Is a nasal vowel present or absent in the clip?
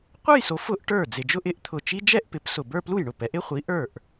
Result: absent